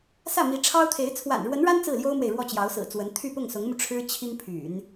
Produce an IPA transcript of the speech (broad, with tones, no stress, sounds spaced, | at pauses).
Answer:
s ä˥˩ m i˧˥ ʈ͡ʂʰ ɑ˥ ʊ̯ t̪ʰ e˧˥ ɪ̯ t͡sʰ w a̰˨˩ n ɻ w ə˧˥ n ɻ a˥ n t͡s ɹ̩˥˩ l j o˥ ʊ̯ m w e˨ ɪ̯ ɻ w ɔ˥˩ t͡ɕ j ɑ˧˥ ʊ̯ s ɹ̩˨˩ t͡s w ə˧˥ n t̪ʰ y˥˧ p ʊ˥˩ ŋ s ʊ˧˥ ŋ m u˧ ʈ͡ʂʰ ɻ̩˥ t͡ɕʰ i˥ ŋ pʰ y̰˨˩˦ n